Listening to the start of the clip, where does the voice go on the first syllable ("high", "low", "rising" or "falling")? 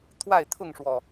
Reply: falling